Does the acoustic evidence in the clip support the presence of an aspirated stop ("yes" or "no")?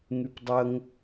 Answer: no